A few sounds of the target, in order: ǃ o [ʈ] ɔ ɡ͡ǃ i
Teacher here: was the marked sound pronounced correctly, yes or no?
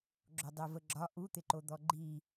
no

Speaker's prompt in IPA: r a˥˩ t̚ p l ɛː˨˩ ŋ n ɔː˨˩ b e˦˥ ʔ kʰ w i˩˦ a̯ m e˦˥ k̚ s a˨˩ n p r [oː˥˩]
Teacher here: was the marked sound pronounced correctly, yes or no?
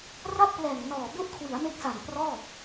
no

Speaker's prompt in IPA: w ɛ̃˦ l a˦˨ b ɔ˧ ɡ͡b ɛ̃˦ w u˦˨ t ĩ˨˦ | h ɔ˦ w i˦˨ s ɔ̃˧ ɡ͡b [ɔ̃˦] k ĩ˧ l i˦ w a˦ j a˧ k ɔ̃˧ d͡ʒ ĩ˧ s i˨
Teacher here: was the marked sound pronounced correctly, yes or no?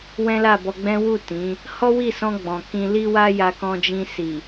no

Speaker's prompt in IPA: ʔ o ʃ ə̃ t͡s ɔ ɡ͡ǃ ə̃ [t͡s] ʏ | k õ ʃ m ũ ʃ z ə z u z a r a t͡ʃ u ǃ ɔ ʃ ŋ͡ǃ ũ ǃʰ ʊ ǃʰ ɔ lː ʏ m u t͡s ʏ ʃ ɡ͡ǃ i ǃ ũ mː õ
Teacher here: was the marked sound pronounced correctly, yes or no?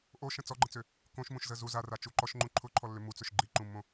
yes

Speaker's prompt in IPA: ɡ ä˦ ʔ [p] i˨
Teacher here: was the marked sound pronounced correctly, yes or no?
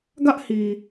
no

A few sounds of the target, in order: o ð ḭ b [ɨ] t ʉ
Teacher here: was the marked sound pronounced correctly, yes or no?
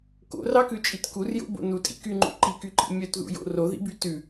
no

